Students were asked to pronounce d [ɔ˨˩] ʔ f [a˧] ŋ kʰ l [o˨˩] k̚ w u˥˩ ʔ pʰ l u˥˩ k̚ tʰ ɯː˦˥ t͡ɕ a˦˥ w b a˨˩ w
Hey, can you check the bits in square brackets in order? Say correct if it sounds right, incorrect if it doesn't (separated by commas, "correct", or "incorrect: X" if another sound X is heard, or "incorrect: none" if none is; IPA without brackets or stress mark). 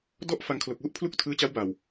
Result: incorrect: ɔ˥˩, correct, correct